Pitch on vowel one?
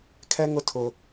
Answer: high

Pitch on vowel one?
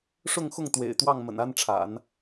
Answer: falling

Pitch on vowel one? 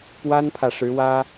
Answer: high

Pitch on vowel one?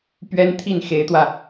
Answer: high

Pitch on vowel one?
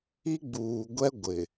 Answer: high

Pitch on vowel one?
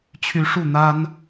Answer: rising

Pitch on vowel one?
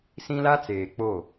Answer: high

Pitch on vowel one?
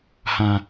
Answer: high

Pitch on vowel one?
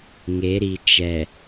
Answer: rising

